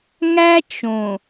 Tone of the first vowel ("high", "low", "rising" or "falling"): high